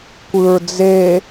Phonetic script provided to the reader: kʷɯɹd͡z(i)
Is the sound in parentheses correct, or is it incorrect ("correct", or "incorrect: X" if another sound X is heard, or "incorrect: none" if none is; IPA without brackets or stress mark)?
incorrect: e